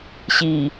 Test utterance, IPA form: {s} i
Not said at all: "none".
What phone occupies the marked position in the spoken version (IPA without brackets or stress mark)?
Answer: ɕ